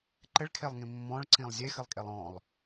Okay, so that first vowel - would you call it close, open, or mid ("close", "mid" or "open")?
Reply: mid